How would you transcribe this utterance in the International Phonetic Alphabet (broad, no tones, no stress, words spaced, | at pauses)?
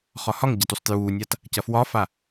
χɒhɒŋ ɟɐtusˤtjuːnʲat | cɐfwɒfa